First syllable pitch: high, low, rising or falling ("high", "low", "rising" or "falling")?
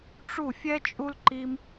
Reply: falling